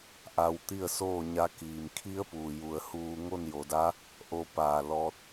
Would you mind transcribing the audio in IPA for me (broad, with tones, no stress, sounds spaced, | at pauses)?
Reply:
ʔ a˧ w t̪ i˥˨ ə̯ s oː˥˨ ɲ a˧˥ k iː˩ m kʰ i˧˥ ə̯ p uː˩ j u˩ ə̯ h uː˧ ŋ o˥˨ n j o˩˧ d a˧˥ | ʔ o˧ p aː˧˩ l ɔː˧ t̚